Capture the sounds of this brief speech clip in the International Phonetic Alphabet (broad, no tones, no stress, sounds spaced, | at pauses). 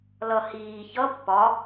l ʌ h iː ç ʌ pː ɒ